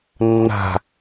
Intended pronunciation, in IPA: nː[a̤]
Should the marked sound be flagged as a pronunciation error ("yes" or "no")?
no